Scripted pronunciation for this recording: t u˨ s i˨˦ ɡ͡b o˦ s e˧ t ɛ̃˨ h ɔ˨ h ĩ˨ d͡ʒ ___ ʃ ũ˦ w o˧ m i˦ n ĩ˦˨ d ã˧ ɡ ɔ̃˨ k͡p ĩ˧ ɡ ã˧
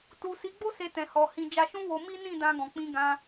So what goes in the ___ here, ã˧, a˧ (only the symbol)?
a˧